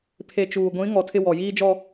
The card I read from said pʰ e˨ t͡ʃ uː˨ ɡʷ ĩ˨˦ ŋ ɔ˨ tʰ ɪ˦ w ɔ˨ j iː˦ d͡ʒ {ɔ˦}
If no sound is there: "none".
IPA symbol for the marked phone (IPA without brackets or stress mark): ɔ˦